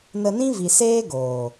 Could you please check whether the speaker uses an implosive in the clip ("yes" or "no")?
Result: no